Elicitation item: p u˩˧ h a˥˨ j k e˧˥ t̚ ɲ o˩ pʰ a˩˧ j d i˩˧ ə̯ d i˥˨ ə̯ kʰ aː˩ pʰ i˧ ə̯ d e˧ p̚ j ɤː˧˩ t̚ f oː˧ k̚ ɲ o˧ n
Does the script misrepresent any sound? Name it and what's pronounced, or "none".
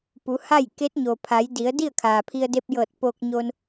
f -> p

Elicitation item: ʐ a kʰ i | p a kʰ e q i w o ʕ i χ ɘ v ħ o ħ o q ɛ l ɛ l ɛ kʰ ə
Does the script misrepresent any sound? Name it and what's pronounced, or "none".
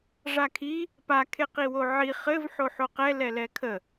none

